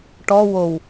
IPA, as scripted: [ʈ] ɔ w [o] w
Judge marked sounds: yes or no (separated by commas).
yes, yes